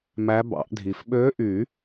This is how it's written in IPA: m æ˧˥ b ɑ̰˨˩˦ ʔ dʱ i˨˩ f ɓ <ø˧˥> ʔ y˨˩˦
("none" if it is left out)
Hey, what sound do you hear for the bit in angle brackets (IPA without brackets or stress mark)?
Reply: ø˧˥